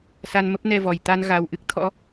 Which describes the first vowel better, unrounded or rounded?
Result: unrounded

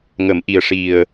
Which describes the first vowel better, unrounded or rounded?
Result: unrounded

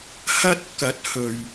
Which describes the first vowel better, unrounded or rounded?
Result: unrounded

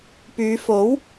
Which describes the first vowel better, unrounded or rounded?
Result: rounded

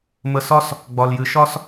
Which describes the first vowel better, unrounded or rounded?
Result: unrounded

